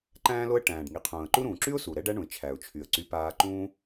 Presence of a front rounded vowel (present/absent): present